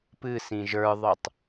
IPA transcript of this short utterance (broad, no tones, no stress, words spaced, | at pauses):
pɨ sĩʒə˞ðˤə˞tˤ